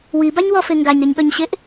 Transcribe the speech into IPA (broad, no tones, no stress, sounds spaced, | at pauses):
w i b a ɲ w ɔ f e ŋ ɡ a ɲ ɾ e ɲ ɠ œ ɲ ɕ e ʔ